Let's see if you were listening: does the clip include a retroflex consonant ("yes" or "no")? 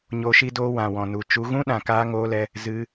no